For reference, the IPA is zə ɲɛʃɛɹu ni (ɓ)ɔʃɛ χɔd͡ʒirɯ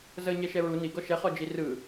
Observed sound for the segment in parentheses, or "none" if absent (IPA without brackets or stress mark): ɡ